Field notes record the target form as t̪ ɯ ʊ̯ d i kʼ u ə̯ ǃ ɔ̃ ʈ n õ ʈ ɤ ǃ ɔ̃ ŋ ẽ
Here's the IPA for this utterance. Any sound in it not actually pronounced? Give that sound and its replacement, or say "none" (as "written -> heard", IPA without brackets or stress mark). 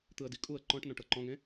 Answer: ʊ̯ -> ə̯